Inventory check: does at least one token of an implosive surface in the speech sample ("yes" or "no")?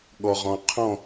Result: yes